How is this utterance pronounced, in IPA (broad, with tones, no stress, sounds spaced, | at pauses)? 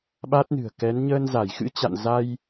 ɓ a˦˥ t̚ n ɨ̤˨˩ ə̯ k ɛ˨˦ n ɲ əː˧ n z a˧˩ j x ɨ̰˧˥ t͡ɕ a̰˧˨ n z a˧ j